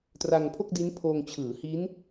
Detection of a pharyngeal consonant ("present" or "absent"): absent